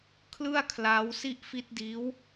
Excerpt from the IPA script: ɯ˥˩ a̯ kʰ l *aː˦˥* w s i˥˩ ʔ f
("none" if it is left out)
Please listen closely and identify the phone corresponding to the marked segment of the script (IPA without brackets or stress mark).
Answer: aː˦˥